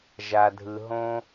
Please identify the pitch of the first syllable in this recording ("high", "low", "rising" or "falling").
low